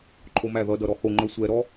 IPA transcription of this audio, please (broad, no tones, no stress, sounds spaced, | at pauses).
ǃʰ o m æ ð ʌ d ʌ ɾ ɔ h o ŋ͡ǃ œ sʷ ɛ ɾ ɔ